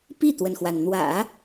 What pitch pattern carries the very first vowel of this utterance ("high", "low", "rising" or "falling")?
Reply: falling